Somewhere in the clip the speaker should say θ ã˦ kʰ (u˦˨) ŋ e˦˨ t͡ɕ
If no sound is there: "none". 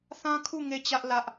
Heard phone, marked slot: u˦˨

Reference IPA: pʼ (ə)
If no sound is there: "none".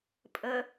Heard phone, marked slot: ə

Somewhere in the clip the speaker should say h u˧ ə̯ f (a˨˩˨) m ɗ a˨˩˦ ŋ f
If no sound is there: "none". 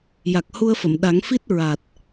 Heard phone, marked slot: ə˨˩˨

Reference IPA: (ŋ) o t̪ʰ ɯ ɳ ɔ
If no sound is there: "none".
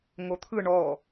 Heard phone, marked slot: ŋ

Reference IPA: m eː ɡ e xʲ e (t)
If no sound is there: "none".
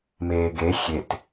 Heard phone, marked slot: t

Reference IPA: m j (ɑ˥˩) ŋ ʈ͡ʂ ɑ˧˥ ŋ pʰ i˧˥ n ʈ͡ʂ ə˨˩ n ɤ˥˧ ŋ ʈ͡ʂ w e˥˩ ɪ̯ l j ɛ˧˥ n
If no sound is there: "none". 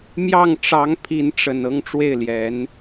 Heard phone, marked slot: ɑ˥˩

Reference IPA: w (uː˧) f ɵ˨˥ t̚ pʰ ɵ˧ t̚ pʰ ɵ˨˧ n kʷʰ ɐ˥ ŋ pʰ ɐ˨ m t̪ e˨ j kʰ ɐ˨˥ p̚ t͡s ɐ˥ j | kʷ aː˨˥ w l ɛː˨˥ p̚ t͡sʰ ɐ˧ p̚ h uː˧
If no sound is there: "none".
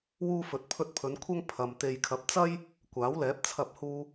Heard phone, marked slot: uː˧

